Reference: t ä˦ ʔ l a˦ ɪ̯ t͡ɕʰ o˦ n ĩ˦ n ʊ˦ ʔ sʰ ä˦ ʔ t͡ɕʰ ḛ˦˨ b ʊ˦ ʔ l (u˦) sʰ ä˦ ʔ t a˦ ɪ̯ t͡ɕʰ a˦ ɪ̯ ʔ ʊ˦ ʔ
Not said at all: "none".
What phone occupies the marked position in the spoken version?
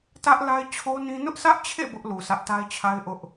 u˨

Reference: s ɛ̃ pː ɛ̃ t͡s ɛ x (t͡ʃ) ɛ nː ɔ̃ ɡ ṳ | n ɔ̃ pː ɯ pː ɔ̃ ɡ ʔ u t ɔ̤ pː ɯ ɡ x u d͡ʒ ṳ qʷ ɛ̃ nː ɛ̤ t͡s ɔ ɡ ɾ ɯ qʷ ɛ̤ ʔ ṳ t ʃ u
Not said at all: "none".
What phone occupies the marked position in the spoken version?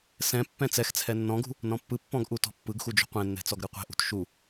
t͡sʰ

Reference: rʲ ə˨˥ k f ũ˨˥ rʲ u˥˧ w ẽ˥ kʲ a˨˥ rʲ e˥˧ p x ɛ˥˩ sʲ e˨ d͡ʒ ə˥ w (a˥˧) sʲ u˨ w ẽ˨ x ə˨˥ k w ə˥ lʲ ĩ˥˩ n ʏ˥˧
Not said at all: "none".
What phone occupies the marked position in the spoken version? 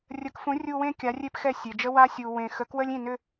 a˥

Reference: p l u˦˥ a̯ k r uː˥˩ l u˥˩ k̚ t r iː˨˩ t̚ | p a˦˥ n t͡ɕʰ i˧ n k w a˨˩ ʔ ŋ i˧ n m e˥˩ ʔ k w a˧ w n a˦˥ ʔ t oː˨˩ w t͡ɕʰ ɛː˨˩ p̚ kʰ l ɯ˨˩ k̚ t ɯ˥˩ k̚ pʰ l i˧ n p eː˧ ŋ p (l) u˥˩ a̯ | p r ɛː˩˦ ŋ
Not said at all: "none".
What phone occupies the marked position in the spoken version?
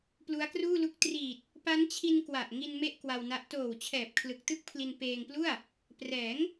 l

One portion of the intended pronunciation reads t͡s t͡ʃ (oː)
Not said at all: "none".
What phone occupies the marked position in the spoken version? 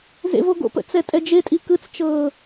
ɤː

